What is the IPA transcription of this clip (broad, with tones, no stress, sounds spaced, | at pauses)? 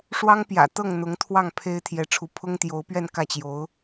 ʂ w ɑ˥ ŋ p j ä̰˨˩ t̪ ɤ˥˩ ŋ n̪ ʊ˧˥ ŋ t̪ʰ w ɑ˥˩ ŋ pʰ e˥ ɪ̯ t̪ʰ j ɛ˧˥ ʈ͡ʂʰ u˧˥ pʰ ʊ˥ ŋ t̪ j o˧˥ ʊ̯ p ɥ ɛ˥˧ n k ä˥˩ t͡ɕ j o˧˥ ʊ̯